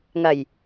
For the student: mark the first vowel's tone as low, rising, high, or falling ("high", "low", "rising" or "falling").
low